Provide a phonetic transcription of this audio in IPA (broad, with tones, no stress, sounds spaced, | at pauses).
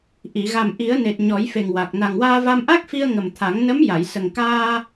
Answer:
ʔ i˨˩˨ ɣ a˨˩ m ʔ i˨˩˦ ə̯ n e˨˩ t̚ ɲ ɔ˨˩˦ j f e˨˩ ŋ w a˨˩ k̚ n a˨˩ ŋ w aː˧ v a˧ m ʔ a˦˥ k̚ f i˧ ə̯ ŋ ə˨˩ m t̪ʰ a˨˩˦ ŋ n ə˧˥ m j a˨˩˨ j s ə˨˩ ŋ k aː˧